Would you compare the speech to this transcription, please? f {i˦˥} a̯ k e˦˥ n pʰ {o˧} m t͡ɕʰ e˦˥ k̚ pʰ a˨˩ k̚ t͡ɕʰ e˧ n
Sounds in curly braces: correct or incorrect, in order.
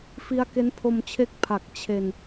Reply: correct, correct

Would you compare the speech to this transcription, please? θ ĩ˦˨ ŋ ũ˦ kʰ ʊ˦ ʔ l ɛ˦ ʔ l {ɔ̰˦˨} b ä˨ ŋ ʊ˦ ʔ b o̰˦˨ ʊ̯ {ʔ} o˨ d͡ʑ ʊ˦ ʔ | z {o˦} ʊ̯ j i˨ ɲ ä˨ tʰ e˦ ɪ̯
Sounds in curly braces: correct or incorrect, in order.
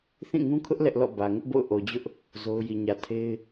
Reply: correct, correct, correct

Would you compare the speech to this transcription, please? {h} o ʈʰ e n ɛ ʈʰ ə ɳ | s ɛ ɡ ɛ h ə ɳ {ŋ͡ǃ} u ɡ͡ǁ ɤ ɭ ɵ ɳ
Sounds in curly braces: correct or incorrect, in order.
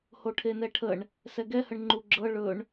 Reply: correct, correct

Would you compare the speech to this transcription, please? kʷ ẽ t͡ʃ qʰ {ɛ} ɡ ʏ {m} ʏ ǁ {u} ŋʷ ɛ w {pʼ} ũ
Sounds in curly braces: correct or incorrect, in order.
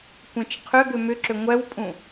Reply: incorrect: ʏ, correct, incorrect: ʏ, correct

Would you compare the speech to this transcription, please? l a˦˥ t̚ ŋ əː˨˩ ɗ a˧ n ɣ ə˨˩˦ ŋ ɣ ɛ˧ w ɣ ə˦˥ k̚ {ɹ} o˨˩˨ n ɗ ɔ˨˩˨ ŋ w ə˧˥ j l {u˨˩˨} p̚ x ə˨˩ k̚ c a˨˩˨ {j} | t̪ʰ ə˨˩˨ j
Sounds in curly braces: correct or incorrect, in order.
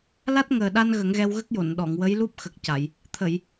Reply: incorrect: j, incorrect: u˦˥, correct

